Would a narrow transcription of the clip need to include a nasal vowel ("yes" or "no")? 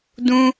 yes